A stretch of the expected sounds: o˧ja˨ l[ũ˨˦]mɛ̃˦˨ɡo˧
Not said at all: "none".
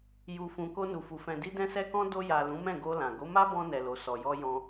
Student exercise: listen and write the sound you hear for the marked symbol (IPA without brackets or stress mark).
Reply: ũ˨˦